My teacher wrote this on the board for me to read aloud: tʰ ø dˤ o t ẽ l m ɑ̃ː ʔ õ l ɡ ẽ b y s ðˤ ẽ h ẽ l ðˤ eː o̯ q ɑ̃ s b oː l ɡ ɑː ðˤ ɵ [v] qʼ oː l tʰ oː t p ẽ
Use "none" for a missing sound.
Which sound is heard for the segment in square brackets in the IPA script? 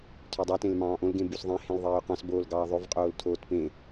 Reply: v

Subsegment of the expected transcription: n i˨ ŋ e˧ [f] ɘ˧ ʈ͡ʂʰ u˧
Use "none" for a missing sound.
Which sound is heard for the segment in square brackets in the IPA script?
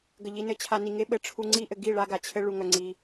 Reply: ɓ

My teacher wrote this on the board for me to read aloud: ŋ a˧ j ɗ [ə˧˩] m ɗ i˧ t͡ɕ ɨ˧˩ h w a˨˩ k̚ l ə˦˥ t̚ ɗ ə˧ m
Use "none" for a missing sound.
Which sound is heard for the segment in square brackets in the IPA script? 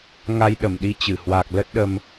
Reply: ə˧˩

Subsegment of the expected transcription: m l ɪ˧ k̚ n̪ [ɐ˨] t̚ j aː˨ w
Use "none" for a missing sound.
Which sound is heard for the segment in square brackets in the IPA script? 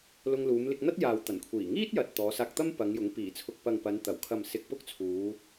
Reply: ɐ˥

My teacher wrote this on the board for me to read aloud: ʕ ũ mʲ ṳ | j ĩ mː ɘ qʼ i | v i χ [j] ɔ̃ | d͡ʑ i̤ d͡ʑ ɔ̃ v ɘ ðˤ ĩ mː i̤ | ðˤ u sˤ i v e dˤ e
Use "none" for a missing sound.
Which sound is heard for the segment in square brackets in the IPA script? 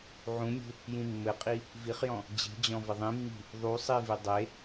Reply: j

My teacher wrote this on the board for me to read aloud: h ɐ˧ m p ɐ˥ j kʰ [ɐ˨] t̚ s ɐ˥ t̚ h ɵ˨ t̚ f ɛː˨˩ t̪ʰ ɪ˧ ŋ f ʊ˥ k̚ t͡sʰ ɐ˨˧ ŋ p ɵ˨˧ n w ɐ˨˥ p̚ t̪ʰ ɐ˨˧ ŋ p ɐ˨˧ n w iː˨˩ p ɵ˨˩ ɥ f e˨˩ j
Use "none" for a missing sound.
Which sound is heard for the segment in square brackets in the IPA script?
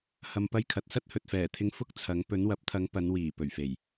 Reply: ɐ˨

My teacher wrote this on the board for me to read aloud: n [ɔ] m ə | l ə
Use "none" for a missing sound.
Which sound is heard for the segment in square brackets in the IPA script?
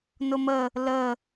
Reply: ʊ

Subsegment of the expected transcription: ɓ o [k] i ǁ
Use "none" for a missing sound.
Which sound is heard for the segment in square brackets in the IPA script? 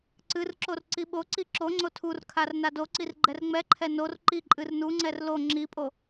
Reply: ǀ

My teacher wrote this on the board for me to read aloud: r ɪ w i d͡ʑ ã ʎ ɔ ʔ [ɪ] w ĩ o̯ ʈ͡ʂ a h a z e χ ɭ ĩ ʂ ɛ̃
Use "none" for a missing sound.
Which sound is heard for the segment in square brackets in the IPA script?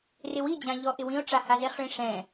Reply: ɪ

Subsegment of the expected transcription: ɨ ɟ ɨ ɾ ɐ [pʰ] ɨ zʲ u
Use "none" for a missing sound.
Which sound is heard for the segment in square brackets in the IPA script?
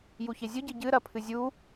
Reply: pʰ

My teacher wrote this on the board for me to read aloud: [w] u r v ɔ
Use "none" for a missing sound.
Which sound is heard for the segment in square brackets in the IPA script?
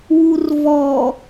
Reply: w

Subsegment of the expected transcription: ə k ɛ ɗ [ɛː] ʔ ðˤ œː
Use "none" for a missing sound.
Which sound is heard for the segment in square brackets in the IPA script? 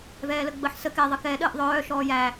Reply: əː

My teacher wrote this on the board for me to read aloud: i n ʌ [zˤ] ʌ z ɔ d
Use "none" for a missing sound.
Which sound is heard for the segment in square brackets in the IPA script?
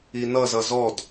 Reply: z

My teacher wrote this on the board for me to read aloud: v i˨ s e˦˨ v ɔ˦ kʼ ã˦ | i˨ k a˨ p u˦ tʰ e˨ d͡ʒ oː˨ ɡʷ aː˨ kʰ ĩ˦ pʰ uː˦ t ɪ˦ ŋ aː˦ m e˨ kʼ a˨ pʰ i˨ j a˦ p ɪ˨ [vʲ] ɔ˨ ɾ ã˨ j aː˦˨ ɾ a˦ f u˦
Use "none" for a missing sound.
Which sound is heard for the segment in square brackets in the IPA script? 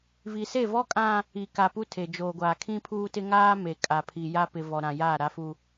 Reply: v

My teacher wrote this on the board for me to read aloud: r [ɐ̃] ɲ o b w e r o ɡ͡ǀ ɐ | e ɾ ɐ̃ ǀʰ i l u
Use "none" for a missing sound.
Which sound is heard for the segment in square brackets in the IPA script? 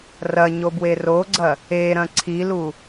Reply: ɐ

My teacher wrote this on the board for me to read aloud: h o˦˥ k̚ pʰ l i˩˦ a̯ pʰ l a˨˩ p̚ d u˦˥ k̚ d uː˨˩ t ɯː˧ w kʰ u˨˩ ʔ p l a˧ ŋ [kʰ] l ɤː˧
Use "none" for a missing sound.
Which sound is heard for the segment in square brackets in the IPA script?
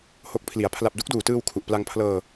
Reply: pʰ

